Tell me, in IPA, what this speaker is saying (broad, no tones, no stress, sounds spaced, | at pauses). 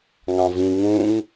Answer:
ŋ ɑ̃ v ĩ ŋ ũ ŋ